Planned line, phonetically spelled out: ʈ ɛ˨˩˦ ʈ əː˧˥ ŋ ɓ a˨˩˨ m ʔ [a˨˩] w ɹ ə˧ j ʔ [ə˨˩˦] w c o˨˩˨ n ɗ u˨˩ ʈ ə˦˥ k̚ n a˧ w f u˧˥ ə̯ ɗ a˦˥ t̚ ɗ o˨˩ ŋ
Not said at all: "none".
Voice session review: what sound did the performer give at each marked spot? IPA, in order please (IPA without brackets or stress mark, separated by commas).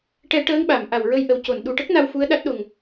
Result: a˨˩, ə˨˩˦